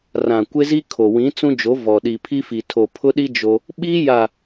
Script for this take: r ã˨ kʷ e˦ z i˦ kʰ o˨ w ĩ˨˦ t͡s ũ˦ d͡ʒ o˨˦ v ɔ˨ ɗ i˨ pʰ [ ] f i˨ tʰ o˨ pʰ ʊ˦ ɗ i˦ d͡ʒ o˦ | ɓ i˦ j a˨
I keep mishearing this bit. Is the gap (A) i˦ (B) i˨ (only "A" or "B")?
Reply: A